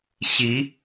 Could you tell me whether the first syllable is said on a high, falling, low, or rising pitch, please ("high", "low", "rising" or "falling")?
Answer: rising